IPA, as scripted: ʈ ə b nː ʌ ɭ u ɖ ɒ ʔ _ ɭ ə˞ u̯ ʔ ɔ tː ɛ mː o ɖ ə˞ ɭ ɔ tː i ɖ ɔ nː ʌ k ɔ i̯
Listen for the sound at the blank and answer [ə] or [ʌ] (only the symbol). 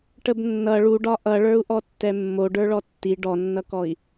ʌ